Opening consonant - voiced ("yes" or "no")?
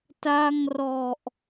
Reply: no